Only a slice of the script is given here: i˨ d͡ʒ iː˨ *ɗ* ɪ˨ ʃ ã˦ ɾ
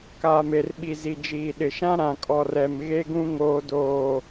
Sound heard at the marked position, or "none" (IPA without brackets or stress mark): ɗ